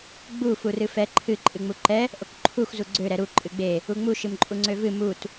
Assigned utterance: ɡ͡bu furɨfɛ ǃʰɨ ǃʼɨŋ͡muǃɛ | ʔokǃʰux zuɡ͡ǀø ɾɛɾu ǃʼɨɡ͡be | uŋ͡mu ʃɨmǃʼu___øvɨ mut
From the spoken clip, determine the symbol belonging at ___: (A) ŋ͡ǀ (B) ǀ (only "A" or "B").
A